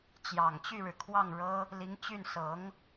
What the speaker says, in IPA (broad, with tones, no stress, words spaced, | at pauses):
t͡ɕjɑ˨˩ŋ t͡ɕy˥˩ɻɻ̩˩ kʰwɑ˥˩ŋɻɤ˥ | li˧˥ŋt͡ɕy˥˩n sɤ˧˥ŋ